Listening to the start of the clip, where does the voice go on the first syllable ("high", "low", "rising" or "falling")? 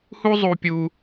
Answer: high